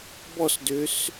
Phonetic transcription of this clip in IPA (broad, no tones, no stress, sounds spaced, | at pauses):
b ɔ s d ø s